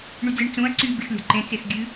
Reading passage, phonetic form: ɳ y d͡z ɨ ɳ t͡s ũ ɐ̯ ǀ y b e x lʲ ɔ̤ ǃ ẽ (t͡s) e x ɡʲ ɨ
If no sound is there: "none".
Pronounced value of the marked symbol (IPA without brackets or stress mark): t͡s